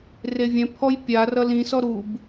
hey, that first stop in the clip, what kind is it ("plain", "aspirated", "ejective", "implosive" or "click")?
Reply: aspirated